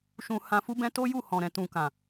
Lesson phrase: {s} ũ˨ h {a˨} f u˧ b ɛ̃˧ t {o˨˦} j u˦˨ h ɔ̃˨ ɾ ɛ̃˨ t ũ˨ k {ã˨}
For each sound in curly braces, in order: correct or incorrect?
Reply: incorrect, incorrect, incorrect, correct

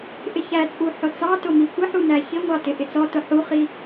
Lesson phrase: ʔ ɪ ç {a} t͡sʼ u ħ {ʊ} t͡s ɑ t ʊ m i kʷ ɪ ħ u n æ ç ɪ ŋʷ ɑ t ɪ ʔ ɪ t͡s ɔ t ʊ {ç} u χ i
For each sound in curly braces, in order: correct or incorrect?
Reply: incorrect, correct, incorrect

